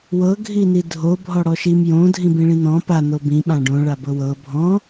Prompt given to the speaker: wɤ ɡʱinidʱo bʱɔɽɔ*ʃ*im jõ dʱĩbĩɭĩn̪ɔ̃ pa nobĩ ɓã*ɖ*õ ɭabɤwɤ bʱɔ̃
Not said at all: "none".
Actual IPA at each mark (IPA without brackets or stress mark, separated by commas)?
ʃ, ɖ